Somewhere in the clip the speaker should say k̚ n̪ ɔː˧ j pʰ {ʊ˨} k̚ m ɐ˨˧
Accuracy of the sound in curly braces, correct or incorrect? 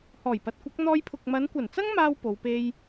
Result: correct